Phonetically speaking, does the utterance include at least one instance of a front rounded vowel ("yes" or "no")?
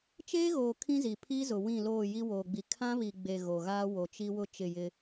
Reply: no